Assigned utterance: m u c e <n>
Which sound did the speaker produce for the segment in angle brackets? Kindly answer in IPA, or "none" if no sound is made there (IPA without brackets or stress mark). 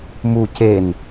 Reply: n